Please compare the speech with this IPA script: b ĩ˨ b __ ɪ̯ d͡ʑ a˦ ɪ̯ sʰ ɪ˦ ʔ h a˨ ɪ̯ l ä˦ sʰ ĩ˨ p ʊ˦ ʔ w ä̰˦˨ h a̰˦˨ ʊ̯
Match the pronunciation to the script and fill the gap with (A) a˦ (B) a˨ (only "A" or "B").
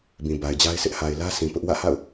B